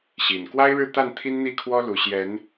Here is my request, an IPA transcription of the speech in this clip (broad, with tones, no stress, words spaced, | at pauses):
ɕi˨˩n kwa˦ɪ̯ɻɻ̩˥˨ t̪a˥˨nt̪ʰi˦n n̪i˥˨kʰwɔ˦lu˨˩ ɕjɛ˨˦n